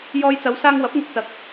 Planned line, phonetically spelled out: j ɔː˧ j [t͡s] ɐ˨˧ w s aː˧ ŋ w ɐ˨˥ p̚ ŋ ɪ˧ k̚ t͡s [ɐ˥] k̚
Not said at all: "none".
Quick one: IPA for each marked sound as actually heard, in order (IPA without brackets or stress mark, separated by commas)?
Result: t͡s, ɐ˨